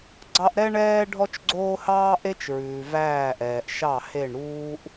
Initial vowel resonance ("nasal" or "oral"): oral